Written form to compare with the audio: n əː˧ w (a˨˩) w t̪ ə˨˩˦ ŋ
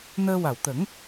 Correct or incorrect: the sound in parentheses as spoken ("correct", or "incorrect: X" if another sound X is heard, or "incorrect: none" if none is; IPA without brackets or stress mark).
correct